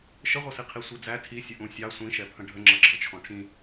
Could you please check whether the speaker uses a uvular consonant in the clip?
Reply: yes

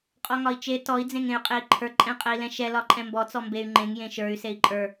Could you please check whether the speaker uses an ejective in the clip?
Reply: yes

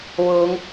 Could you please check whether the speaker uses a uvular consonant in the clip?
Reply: no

